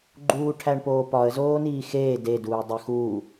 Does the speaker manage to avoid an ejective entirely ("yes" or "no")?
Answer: yes